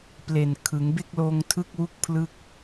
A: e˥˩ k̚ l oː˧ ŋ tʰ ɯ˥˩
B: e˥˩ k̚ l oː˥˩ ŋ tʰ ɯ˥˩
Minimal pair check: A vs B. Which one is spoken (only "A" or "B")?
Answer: A